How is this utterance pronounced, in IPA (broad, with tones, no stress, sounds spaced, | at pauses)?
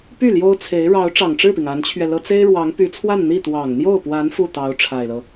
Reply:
p y˥˩ l j o˥ ʊ̯ t͡sʰ e˧˥ ɪ̯ ɻ ɑ˧˥ ʊ̯ ʈ͡ʂ ɑ˨˩ ŋ ʈ͡ʂ ɻ̩˥˩ p i˩ ŋ a˧˥ n t͡ɕʰ ɥ ɛ˧ l ɤ˥ t͡s e˥ ɪ̯ ɻ w ɑ˧˥ ŋ p y˧˥ t͡sʰ w a˥˧ n n̪ i˥˩ t̪ w ɑ˨˩ ŋ n̪ j o˥˩ ʊ̯ p w a˧˥ n f u˥˩ t̪ ɑ˧˥ ʊ̯ ʈ͡ʂʰ a˨˩ ɪ̯ l ɤ˦